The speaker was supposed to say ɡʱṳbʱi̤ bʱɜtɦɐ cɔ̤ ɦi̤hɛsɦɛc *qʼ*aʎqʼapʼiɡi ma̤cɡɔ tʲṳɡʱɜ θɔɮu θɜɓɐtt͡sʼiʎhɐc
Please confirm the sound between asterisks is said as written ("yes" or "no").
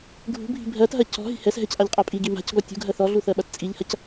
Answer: no